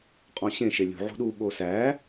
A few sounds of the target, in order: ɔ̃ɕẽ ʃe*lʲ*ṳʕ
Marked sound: correct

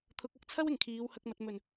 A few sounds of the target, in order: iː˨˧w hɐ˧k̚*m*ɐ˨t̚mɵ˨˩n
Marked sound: correct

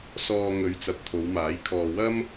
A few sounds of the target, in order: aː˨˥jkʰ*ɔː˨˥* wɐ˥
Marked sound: incorrect: ɔː˧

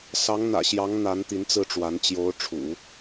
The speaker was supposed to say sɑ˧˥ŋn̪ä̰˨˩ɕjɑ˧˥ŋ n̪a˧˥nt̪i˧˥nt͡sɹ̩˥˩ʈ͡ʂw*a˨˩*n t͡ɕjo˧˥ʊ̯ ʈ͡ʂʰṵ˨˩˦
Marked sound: incorrect: a˧˥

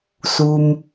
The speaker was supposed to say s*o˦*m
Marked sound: incorrect: u˦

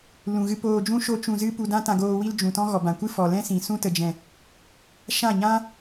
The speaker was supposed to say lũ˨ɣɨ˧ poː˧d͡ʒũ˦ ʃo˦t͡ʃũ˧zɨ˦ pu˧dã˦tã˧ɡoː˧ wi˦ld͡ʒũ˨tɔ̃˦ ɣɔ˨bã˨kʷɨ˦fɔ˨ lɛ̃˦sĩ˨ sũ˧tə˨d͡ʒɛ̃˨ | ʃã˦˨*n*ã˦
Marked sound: incorrect: ɲ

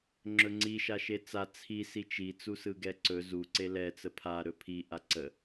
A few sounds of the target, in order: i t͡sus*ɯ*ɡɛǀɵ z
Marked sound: correct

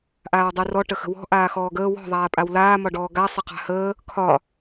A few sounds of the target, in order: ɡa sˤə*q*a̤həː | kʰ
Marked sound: correct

